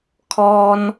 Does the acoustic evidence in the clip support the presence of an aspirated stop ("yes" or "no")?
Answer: yes